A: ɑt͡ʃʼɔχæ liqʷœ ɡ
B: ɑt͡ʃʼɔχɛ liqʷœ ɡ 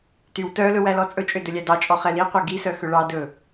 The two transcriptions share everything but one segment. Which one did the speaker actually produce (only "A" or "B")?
B